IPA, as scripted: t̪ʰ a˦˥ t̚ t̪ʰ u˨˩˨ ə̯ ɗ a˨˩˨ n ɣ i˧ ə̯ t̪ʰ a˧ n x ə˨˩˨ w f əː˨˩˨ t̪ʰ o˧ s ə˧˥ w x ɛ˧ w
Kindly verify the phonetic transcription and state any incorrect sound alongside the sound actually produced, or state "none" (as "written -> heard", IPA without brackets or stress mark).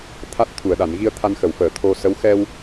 none